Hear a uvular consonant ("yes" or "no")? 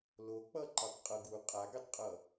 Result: yes